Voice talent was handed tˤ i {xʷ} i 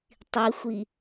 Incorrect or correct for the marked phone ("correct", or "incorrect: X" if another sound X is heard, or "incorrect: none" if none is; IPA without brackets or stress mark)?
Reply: correct